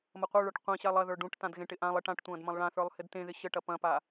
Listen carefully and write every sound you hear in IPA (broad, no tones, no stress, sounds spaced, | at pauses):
m ɐ qʷ ə˞ ɭ ə˞ ʈ qʷ ẽ ɕ a lˠ ɐ ð ə˞ ɖ ũ ʈ t ã d ɣ ẽ ʈ ɪ ʔ ã lˠ ɪ ʈ ã ʈ tʷ ɐ̃ː d m ɐ̃ lˠ ɭ ã θ ə˞ lˠ h ɪ d t ẽ ð ɪ ɕ ə ʈ ɐ p ɐ̃ p a